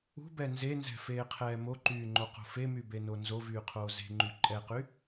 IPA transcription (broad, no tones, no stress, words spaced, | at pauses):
ṳbɛ nzenzɛ̤feːqʰɛː moǃyːŋ͡ǃoqo̤ femybeno nzovyːqʰoː ze̤ŋ͡ǃy ǃʼɛqy